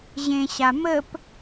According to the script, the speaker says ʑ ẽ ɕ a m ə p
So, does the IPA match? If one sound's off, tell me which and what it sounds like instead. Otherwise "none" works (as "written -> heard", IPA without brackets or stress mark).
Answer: none